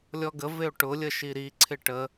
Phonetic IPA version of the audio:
lʲɔɡə vɪo̯ʈʊ lʲəʃiɾi ǀʰɪʈə

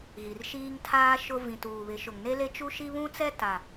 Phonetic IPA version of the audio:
ɣi˨rʃiː˦ŋtʰaː˦ ʃʊ˦ vĩ˨tuː˨βɪ˨˦ ʃʊ˨ŋne˦le˦ t͡ʃu˦ʃi˦ βũ˦t͡sɛ˦ ta˨

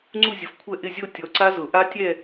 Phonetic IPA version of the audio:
ŋ͡ǀu˥˧zʲʊ˨˥fkʷʰɛ˥˧ ʔɪ˥˧zʲo˥˧ tʲɔ˨˥ǀa˦˥zʊ˨˩˦ ʔa˦˥tʲɛ˥˧

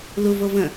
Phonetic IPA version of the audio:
luvovə̃

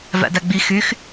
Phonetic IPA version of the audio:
væ̰dæɡ͡bi xyx

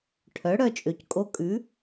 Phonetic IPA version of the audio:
ʈʰœ˩˥ ɽœ˧t͡ʃʼø˩ckʼo˧kʼʉ˩˥

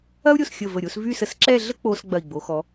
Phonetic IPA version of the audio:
ɐ˥u̯ɾʲo˧˩sxʲə˧˩ və˧˩ɾʲo˥˧s vy˥˧sə˧˩s ǁɛ˥˧ɮə˥k͡po˧s ɡ͡bɐ˧˩i̯ɡ͡bo˩˧xɔ˩˧

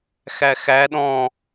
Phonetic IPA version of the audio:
xæxæ ɗɔ̃

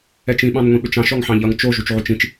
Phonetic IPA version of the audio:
ɛt͡ʃĩ ɓɑ̃nŋʷĩɓʏt͡ʃɑ̃ʃ ɔŋħɑ̃ʎʌŋ t͡ʃo ʒut͡ʃʕut͡ʃĩt͡ʃ

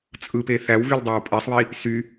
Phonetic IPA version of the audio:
t͡sʼɯpe θæwvyldˤæw pʼesˤβi | sy

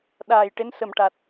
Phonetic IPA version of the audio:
ɗaː˨˩j ʈe˧˥nsə˨˩mʈa˨˩t̚

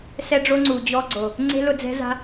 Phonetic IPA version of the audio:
sɛ˦ɖ͡ʐo˦ŋ͡ǀu˨ d͡ʑɔ˦ɡ͡ǀo˨ | ŋ͡ǀe̤˦lʊ˧d͡zɛ̤˦za̤˦

